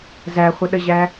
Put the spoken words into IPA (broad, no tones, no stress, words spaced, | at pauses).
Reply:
zæχʷəɗəʑæ